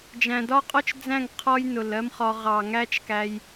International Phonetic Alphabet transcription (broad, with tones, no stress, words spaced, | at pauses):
d͡ʒæ̃˨dɒ˦qʼɔ˦t͡ʃd͡zæ̃˦˨ŋ qʰɔ˦jnʊ˨lɜ˦mχɒ˧ ʁɑ˨ŋæ˦t͡ʃkæ˧j